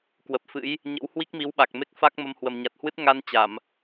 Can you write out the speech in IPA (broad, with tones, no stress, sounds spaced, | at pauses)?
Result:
k w ə˨˩ p̚ f ɨ̰˧˥ j | ɲ ə̰˧˥ w h w i˦˥ k̚ m i˨˦ w ɓ a˨˩ k̚ m e˦˥ k̚ f a˦˥ k̚ m ə˧ m h w ə˨˩ m ɲ a˨˩ t̚ h w ɨ˦˥ t̚ ŋ a˧ n t͡ɕ a˧˩˨ m